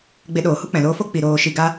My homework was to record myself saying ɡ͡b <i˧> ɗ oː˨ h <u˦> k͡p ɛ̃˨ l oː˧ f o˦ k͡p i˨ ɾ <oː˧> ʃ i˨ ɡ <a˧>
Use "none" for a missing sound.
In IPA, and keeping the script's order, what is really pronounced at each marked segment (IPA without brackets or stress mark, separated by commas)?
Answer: e˧, u˦, oː˨, a˧